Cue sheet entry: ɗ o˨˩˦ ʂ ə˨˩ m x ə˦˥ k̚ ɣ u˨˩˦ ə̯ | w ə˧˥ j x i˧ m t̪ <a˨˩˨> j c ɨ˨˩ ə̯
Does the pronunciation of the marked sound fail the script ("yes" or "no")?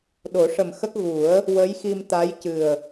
yes